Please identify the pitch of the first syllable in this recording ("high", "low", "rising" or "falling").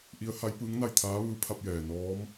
rising